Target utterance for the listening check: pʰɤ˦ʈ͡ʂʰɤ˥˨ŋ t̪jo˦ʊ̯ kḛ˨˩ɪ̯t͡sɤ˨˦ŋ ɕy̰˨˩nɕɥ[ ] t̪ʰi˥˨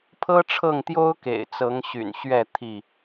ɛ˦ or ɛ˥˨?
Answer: ɛ˥˨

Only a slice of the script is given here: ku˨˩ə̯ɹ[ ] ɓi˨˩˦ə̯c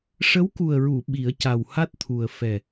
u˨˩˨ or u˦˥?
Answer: u˨˩˨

